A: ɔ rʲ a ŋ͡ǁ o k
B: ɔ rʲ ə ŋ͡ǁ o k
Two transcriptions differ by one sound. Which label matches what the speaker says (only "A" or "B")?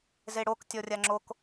A